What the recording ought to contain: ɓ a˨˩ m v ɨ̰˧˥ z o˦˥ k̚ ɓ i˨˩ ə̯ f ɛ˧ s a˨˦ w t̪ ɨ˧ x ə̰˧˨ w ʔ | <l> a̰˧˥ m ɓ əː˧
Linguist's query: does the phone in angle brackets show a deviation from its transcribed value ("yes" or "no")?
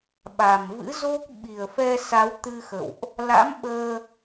no